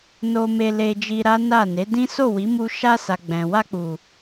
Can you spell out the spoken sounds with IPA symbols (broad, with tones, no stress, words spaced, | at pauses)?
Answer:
no˧me˧le˧d͡ʒi˧ ɾa˦na˦˨ ne˨˦dĩ˦ so˦˨wi˨˦mu˧ ʃa˧sa˨ ɡ͡bɛ̃˨ wa˧k͡pu˨